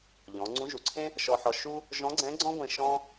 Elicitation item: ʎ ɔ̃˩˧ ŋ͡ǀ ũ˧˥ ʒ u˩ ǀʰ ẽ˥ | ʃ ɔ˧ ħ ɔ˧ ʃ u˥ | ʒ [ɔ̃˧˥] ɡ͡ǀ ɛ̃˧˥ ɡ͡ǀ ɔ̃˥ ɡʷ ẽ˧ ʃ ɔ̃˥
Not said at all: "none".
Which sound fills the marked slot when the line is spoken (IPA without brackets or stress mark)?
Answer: ɔ̃˧˥